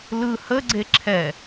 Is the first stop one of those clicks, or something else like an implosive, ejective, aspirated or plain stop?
click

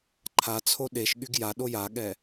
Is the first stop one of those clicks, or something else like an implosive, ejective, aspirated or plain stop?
click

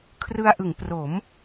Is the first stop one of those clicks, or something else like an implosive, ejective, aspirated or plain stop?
aspirated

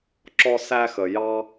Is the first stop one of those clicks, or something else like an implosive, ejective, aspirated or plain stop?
click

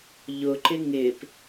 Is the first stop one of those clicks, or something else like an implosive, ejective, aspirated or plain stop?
click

